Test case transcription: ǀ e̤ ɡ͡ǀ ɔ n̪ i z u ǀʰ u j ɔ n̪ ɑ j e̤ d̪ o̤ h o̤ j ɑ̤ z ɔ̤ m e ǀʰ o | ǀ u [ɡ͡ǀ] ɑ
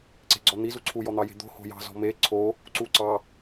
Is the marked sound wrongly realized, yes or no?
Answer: yes